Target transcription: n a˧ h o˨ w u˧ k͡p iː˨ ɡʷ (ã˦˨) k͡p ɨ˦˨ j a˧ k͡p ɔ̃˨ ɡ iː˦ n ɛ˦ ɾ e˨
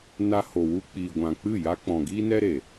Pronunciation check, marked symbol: incorrect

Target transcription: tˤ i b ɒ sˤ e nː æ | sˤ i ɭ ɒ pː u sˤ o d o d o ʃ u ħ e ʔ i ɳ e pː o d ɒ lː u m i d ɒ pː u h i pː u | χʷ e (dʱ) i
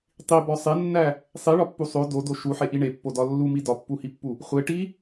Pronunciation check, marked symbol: incorrect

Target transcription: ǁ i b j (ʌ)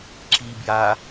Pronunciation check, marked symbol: incorrect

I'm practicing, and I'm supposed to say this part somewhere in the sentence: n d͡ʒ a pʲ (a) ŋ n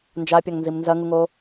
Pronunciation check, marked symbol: correct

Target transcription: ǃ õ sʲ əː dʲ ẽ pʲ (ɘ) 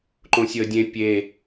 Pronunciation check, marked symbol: incorrect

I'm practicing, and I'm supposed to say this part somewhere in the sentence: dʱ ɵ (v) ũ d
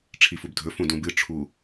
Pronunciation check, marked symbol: incorrect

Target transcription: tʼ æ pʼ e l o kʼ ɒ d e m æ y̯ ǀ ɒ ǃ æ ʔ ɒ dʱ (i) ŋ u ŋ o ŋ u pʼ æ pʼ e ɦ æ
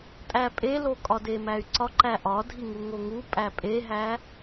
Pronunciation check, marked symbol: correct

